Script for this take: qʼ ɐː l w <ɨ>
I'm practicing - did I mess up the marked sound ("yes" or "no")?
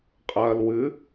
no